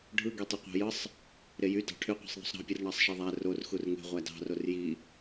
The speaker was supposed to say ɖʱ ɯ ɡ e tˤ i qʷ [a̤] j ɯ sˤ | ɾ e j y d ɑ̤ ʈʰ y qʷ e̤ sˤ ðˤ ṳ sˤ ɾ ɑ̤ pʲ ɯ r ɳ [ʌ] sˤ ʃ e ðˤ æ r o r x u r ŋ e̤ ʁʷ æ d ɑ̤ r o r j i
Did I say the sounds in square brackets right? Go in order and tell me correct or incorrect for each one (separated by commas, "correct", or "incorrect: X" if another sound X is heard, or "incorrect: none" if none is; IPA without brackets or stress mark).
incorrect: ɑ̤, incorrect: ɑ